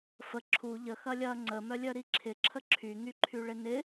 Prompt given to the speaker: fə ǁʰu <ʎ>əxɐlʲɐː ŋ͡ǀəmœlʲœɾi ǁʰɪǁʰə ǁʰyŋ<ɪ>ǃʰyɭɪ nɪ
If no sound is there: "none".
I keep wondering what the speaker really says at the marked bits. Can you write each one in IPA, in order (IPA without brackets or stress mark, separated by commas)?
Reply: ʎ, y